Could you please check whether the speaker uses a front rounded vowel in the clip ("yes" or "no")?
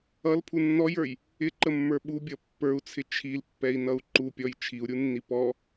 no